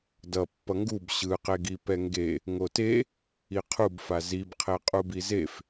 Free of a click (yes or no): yes